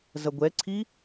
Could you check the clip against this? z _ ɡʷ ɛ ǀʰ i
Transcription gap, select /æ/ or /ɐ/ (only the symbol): ɐ